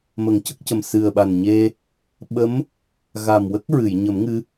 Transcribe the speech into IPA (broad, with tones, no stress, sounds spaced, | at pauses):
m ə˨˩˦ ŋ c ə˦˥ k̚ c ə˨˩ m s ɨ˨˩ ə̯ ɓ a˨˩ n ɲ e˧ | ɓ ə˧˥ m | ɣ a˨˩ m w ə˦˥ k̚ ɹ ɨ˨˩˨ j ɲ ə˨˩˦ m ŋ ɨ˧˥